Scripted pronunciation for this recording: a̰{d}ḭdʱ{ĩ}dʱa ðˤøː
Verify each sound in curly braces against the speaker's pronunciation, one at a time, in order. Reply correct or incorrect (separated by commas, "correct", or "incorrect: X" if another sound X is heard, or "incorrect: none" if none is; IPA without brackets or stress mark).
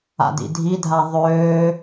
correct, incorrect: i